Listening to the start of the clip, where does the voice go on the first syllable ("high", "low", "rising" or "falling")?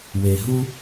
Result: low